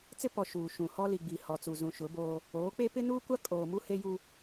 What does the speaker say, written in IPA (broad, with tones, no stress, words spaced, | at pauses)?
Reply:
t͡sɪ˦pɔ˨ ʃuː˨ʃũ˨ hɔ˦li˨ɡ͡bi˨ hɔ˨t͡su˨ zũ˨ʃʊ˨˦boː˦ | oː˨˦k͡pe˦ pɪ˦nuː˦kʷa˦ kʼoː˨ mu˦he˦ju˦